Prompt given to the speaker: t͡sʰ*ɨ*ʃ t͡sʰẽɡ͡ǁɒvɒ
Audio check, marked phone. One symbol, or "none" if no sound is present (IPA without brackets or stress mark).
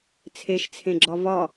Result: e